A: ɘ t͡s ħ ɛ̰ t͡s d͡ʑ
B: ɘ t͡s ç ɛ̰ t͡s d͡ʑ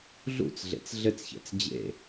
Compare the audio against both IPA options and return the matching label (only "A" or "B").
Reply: B